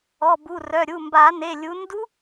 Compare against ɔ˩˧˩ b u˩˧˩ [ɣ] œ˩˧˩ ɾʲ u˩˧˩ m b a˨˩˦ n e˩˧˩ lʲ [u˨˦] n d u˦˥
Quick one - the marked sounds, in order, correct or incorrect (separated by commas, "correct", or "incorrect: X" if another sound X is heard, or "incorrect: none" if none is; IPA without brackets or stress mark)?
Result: incorrect: r, correct